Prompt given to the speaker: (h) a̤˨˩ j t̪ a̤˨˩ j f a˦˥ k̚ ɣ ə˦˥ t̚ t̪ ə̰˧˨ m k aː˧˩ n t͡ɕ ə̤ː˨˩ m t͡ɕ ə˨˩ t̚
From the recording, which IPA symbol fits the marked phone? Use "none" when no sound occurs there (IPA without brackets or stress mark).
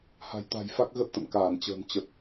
h